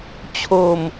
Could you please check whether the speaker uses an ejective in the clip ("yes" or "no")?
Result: no